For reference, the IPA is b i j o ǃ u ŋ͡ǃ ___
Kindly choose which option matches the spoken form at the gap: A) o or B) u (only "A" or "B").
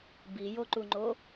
A